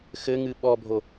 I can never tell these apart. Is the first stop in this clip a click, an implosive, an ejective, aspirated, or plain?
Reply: implosive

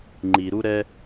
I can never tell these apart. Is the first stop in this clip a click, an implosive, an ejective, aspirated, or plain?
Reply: click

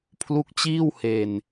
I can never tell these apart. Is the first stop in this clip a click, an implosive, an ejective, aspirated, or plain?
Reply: aspirated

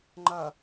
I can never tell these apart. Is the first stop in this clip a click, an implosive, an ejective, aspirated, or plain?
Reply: click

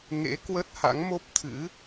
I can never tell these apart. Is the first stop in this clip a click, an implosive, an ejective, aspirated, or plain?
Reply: plain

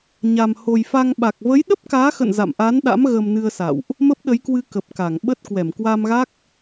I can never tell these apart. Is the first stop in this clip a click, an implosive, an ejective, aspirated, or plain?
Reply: implosive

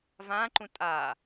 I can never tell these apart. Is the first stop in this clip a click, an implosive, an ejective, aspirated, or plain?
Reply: click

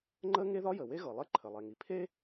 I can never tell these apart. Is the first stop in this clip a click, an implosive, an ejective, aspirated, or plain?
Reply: click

